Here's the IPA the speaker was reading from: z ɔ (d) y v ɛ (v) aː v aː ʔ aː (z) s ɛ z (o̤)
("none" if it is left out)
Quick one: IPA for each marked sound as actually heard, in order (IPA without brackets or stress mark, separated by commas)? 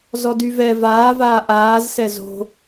d, v, z, o̤